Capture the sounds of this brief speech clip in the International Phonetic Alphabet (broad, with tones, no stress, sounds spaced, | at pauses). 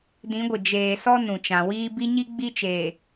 d ĩ˨˦ ɡʷ ɪ˨ d͡ʒ eː˨ s ɔ˦ n ũ˨ t͡ʃ ã˨ w iː˦ b i˦ ɲ i˦ ɡ͡b i˦ t͡ʃ eː˨